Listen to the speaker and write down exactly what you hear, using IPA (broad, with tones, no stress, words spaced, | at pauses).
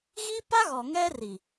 ɣi˦pa˦ ɣɔ˨ŋɛ˦ri˨